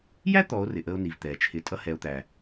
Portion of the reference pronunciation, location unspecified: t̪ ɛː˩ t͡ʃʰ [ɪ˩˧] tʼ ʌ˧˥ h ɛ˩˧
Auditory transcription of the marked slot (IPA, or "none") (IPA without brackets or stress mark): ɪ˩˧